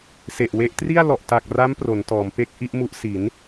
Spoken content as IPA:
se˨˩ʔwe˦˥ʔ tri˥˩a̯ lɔ˨˩ʔ ta˨˩k̚ra˦˥m pro˩˦ntɔː˩˦mpe˥˩k̚ ʔi˥˩ʔmu˦˥ʔ si˩˦n

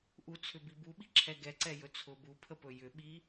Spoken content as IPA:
ʔut͡sʰʏbi buɓiǁʰɛ ɡɛǀɛjɵ t͡sʰʊ bupʰəpɵ jʏɓi

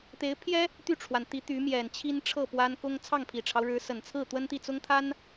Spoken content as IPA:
t̪e˧˥ɪ̯pʰjɛ˥ | t̪y˥˩ʈ͡ʂʰwa˩nt̪i˧˥ t̪y˧˥mjɛ˨˩nt͡ɕʰi˥nʈ͡ʂʰɤ˥˩ pwa˥n kʊ˥ŋ t͡sʰɑ˥˩ŋpʰi˨˩ʈ͡ʂʰɑ˦ʊ̯ɻɻ̩˧˥ sə˨˩nt͡sʰɹ̩˥˩ t̪wə˥nt̪i˥˩t͡sʊ˥ŋt̪ʰa˥n

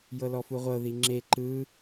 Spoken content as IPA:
jɤlɔfuʁʷɤ ðiŋ͡ǁe ǃɯ

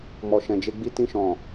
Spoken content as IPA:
mɔ˨ʃɛ̃˨d͡ʒe˧ ɡ͡bi˧tĩ˧ʃɔ̃˨

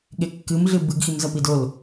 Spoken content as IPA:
ɠekːɨm ɮɨbɨɡ ximzɐpidol

